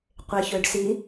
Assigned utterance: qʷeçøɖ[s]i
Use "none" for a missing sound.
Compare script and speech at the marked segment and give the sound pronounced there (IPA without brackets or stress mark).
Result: s